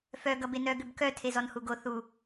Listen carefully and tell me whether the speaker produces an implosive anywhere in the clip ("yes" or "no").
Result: no